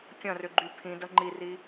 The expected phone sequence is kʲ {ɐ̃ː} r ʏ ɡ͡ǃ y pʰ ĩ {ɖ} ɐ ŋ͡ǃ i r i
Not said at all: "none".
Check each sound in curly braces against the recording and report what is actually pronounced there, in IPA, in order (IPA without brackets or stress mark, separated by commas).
ɐ̃, d